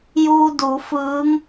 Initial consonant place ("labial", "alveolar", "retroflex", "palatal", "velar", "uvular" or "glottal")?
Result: palatal